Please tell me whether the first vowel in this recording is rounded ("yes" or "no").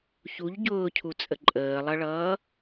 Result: yes